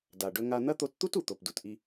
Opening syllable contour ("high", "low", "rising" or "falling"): low